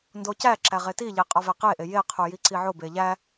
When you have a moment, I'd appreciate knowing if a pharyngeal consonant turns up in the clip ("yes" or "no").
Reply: yes